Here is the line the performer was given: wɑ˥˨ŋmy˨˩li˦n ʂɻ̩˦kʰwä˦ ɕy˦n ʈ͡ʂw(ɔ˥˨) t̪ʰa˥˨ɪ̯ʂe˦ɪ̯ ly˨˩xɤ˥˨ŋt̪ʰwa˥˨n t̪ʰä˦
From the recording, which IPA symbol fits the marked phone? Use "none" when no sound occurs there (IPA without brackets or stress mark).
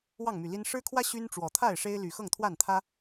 ɔ˨˩